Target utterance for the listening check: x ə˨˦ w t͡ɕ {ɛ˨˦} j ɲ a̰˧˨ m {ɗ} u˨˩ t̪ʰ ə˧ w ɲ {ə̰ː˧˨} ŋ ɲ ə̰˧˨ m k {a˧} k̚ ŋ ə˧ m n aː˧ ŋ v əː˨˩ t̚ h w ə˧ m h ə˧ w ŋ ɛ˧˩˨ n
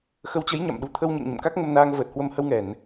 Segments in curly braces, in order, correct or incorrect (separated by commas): incorrect, correct, correct, incorrect